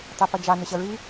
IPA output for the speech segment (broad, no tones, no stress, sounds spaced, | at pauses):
tˤ ɛ p ʌ d͡ʒ ɑ n ʊ ɕ ʌ ɹ i